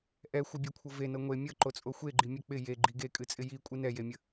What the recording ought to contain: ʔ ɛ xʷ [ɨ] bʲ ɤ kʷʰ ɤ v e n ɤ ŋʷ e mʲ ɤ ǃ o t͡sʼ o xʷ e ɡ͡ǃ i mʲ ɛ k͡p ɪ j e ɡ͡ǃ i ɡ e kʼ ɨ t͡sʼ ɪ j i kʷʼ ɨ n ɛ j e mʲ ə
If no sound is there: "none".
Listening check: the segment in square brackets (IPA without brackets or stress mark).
ɨ